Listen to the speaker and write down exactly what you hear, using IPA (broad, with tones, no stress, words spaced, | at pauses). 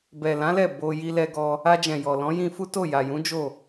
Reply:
bɛ˨lã˨˦lɛ˦˨ bo˧ ji˧lɛ˧ɡɔ˧ | a˧d͡ʒɛ̃˨jɔ˨ lɔ̃˨˦jĩ˧fu˦to˦˨ ja˨jũ˨˦ d͡ʒo˦˨